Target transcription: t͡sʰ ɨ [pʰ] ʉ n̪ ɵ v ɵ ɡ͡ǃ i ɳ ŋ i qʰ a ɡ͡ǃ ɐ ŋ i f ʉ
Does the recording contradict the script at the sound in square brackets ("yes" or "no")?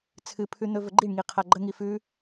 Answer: no